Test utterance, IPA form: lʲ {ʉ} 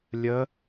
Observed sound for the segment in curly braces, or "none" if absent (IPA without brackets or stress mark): ə